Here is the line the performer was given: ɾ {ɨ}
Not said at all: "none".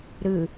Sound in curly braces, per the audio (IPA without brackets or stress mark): ɨ